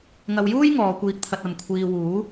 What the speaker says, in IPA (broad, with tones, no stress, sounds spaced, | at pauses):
ŋ ɐ˧ w j uː˥ j ŋ ɔː˨˧ kʷ iː˧ k̚ t̪ʰ ɐ˧ t̚ ɐ˨ m kʷʰ iː˧ w uː˨˥